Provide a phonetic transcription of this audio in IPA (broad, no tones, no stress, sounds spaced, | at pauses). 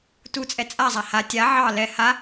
t u t͡sʼ ɛ t͡sʼ a zˤ a h a tʲ a ʕ ɑ l ɛ h a